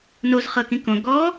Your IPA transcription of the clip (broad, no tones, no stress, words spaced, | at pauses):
noz χɤkĩkõ ɡɔ